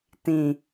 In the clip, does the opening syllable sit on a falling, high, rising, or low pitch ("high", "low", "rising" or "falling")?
low